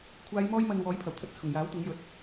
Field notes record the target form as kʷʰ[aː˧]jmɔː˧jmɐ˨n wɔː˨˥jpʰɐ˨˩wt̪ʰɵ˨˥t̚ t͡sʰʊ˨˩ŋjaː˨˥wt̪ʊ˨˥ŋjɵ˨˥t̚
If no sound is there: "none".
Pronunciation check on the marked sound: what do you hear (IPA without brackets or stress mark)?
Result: aː˨˧